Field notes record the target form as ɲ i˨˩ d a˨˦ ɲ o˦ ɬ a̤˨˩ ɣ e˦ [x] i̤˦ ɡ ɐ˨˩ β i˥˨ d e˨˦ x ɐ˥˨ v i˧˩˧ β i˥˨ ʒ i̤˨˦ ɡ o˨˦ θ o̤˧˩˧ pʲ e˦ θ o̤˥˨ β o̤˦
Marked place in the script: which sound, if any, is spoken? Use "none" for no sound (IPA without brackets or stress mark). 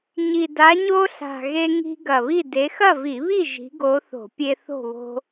ŋ